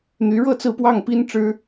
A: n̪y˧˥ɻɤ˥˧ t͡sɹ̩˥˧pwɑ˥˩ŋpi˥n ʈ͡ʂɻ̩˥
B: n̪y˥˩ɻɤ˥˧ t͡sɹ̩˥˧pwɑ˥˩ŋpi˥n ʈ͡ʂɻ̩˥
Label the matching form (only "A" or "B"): A